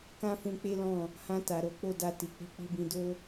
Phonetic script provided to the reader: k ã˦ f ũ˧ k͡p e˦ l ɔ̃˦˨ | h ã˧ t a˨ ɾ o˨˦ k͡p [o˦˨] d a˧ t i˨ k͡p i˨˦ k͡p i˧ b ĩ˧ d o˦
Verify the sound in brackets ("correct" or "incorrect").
correct